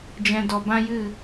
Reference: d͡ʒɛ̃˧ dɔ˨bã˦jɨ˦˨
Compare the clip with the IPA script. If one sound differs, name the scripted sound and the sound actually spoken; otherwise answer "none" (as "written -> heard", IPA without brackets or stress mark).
none